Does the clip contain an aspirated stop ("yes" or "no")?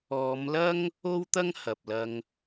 no